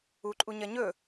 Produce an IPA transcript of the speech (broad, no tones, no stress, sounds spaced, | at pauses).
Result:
u ǃʼ u ɲ ɐ ɲ ɵ